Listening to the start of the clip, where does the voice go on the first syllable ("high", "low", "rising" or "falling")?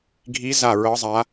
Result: rising